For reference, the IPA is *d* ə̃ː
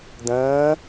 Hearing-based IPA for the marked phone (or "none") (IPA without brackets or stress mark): d